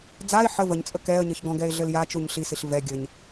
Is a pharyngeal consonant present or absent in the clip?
present